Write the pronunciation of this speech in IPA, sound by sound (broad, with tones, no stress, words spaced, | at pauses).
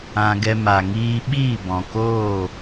ã˧ɡɛ˧ ma˨ŋiː˧ɓiː˦˨ bɔ̃˨koː˦˨